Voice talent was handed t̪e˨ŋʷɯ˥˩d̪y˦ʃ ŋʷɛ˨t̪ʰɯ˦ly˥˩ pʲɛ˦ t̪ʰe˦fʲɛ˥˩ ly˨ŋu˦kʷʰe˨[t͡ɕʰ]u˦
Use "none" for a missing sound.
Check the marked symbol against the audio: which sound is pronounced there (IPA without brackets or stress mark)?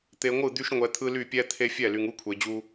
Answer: d͡ʑ